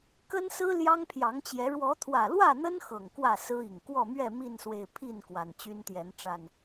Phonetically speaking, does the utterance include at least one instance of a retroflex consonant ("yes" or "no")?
yes